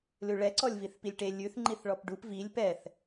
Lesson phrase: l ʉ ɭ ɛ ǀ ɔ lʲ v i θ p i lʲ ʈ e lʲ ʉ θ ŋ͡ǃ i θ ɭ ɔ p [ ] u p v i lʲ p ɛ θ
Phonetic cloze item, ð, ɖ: ɖ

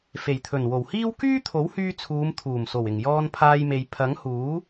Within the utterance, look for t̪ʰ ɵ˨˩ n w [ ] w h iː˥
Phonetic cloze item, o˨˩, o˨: o˨˩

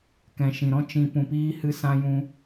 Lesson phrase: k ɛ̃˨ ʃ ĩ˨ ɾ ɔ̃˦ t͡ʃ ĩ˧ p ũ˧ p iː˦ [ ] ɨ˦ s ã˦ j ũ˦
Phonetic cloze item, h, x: h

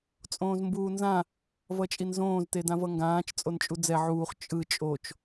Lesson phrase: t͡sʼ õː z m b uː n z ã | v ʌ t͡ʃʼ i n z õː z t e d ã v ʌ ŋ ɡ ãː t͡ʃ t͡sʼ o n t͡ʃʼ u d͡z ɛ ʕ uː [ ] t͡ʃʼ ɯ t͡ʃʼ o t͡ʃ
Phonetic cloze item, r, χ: χ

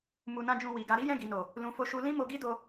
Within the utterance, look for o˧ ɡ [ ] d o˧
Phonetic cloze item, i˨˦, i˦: i˦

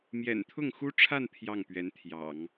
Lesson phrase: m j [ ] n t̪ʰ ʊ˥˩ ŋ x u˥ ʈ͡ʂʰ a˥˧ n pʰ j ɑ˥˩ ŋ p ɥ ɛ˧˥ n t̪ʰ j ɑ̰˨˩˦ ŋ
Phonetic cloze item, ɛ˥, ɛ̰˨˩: ɛ̰˨˩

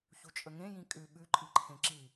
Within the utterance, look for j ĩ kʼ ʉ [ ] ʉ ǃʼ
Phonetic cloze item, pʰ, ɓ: ɓ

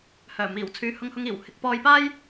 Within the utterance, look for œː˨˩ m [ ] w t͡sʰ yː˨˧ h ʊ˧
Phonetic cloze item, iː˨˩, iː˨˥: iː˨˩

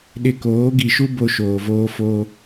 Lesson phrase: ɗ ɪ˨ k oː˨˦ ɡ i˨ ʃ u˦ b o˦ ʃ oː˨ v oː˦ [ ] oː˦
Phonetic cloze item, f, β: f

